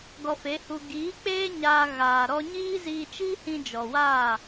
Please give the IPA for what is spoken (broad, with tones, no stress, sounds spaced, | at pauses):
ɡ ɔ˧ f e˨˦ h u˧ ɡ iː˨˦ k͡p eː˦ ɲ aː˧ ɣ aː˨ ɾ ɔ˧ ɲ iː˦ z iː˧ t͡ʃ i˦ h ĩ˧ d͡ʒ ɔ˨ w aː˦˨